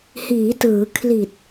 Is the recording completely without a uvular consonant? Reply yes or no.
yes